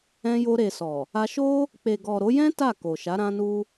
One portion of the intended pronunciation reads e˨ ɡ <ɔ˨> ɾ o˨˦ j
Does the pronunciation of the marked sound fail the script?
no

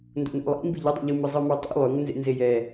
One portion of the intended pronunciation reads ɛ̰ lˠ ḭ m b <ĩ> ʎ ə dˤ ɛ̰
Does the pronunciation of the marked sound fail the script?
yes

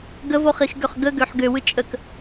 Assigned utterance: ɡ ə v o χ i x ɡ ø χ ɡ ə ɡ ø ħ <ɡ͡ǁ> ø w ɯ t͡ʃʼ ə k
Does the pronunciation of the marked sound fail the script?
yes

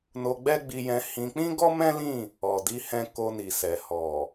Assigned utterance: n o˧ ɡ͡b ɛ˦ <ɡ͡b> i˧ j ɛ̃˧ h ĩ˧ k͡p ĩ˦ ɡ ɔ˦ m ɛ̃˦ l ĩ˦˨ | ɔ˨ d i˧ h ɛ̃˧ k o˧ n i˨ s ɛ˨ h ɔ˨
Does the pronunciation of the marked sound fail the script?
no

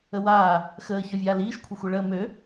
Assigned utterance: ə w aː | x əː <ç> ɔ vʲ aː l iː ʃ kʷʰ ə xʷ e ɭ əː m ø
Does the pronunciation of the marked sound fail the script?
no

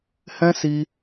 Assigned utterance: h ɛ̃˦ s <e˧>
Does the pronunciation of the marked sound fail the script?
yes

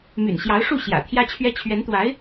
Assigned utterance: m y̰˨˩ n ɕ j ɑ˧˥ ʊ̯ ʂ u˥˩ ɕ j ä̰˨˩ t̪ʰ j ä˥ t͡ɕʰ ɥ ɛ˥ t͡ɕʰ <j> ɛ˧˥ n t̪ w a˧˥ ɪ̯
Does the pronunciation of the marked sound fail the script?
yes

